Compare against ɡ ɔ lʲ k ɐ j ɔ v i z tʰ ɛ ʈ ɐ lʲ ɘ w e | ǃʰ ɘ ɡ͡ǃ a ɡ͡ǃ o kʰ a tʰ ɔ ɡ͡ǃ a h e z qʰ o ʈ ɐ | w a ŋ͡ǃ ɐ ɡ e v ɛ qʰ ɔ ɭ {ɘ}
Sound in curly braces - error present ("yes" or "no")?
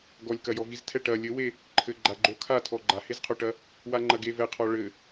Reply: no